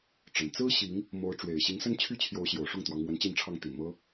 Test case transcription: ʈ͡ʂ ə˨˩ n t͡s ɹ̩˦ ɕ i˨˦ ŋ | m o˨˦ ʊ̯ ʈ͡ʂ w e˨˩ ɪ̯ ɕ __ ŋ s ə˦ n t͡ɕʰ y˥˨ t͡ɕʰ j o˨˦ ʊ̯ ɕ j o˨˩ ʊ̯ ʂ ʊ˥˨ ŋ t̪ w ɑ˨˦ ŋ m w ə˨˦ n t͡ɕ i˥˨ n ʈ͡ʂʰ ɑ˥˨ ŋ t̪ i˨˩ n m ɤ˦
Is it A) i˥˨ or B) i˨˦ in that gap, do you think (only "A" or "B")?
B